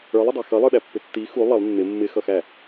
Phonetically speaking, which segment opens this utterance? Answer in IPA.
ə˞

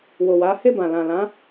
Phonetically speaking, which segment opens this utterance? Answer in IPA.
w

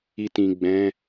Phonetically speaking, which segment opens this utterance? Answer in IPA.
i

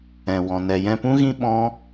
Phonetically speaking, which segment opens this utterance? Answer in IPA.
ɛ̃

